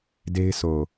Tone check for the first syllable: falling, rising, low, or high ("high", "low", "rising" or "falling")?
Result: high